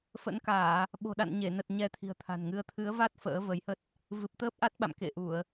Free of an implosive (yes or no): no